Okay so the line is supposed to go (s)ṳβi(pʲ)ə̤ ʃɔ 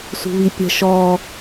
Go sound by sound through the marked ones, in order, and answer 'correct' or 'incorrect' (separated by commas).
correct, correct